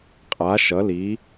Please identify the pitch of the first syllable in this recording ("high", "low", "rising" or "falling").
rising